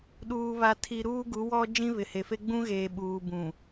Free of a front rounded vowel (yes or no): yes